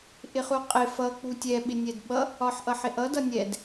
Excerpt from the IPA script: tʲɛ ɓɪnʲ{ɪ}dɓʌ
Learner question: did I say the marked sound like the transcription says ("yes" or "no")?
no